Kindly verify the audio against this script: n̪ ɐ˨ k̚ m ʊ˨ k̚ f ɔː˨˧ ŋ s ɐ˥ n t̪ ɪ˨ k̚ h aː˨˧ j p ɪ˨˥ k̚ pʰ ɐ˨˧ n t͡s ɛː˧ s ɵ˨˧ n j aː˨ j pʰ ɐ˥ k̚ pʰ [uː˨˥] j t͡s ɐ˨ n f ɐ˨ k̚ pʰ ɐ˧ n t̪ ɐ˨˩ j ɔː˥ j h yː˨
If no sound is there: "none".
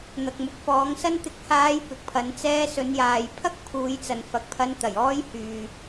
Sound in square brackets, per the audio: uː˨˧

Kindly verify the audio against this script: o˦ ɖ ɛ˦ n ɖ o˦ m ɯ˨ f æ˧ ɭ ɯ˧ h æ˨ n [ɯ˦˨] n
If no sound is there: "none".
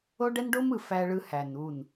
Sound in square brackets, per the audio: u˦˨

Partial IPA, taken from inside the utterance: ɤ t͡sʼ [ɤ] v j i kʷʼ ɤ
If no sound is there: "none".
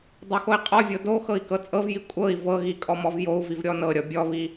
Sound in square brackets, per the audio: ɤ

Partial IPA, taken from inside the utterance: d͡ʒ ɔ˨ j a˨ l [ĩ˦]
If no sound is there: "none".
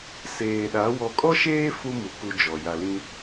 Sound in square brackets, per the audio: ĩ˦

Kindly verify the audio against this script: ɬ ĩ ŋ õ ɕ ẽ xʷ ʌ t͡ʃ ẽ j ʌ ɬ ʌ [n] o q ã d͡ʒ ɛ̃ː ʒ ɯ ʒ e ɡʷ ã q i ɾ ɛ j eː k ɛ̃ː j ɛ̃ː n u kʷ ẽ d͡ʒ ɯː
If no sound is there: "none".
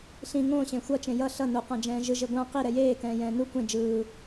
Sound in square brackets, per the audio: n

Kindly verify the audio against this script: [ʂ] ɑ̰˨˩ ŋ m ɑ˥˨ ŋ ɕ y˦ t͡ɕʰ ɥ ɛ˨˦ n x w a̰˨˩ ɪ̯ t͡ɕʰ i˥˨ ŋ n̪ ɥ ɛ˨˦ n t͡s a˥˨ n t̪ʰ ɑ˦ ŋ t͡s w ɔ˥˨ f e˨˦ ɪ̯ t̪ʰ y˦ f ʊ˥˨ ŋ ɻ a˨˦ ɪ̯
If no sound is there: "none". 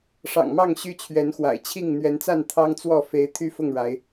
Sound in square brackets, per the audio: ʂ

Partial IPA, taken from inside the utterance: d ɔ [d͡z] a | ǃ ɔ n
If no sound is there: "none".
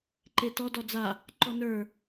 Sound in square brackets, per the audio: d͡z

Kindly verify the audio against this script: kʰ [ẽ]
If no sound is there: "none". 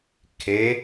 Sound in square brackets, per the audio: e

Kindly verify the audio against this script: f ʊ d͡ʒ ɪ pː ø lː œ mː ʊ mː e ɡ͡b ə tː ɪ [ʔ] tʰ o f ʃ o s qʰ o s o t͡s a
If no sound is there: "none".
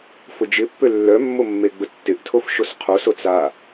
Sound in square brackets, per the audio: ʔ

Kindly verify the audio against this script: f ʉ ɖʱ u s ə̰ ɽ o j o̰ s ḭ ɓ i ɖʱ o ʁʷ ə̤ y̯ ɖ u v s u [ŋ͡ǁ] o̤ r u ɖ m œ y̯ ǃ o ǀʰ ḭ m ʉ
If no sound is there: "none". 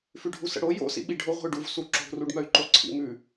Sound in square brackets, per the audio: ǁ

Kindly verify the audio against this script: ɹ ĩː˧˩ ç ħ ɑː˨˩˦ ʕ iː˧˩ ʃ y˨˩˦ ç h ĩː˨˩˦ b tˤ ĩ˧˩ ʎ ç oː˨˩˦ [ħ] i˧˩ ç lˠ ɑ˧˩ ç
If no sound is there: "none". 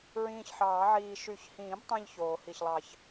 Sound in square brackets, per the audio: h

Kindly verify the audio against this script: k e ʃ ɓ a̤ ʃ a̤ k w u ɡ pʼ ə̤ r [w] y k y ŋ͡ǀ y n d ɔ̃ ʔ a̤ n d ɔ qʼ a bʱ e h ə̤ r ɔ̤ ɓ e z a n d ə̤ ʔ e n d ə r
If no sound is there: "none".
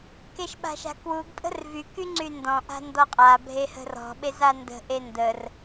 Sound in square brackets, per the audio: v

